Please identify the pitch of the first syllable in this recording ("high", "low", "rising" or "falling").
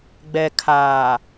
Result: low